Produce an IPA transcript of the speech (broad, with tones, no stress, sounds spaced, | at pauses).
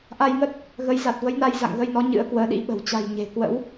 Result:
ʔ a˧ j ŋ ə˦˥ t̚ | ɣ ə˨˦ j z a˨˩ t̚ v ə˨˦ j n a˧ j z a̰˧˨ ŋ ɣ ə˧ j n ɔ˨˦ ɲ ɨ̰˧˥ ə̯ k w əː˨˦ ɗ ḭ˧˥ ɓ ə̤˨˩ w t͡ɕ a̤˨˩ j ɲ e̤˨˩ k w ə̰˧˥ w